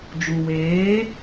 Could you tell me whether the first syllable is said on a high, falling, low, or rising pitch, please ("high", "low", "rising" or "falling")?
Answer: low